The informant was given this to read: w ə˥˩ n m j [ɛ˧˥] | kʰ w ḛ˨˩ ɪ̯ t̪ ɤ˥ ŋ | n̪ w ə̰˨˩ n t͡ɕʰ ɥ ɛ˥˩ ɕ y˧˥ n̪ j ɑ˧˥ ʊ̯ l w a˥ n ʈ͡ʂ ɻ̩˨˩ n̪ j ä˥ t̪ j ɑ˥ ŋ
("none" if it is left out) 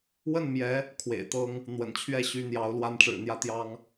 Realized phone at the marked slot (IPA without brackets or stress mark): ɛ˧˥